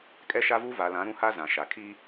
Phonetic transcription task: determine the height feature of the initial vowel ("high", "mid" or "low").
mid